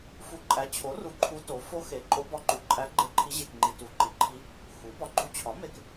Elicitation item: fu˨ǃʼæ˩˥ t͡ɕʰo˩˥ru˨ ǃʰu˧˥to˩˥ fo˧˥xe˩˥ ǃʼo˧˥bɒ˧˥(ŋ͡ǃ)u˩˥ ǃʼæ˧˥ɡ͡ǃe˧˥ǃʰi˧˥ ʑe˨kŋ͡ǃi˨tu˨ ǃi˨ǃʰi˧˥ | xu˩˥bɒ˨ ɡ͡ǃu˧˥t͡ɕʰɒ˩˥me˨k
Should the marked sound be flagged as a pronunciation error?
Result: yes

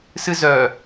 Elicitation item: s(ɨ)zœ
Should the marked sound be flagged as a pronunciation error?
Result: no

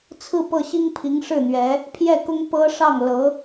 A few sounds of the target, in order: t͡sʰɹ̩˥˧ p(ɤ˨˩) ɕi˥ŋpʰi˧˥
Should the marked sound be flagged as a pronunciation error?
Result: yes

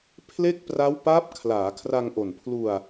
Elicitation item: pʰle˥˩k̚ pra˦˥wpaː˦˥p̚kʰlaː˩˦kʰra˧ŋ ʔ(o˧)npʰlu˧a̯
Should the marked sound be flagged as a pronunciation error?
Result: yes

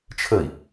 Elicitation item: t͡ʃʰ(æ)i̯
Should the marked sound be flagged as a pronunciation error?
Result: yes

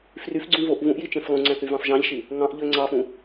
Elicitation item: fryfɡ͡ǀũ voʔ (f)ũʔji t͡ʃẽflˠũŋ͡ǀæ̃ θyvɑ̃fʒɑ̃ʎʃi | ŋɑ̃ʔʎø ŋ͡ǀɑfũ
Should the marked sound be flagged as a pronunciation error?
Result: yes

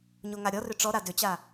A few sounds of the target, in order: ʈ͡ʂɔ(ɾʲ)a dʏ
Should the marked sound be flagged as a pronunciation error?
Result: yes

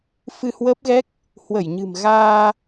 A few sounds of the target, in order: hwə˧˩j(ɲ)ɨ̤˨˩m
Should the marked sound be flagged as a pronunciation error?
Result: no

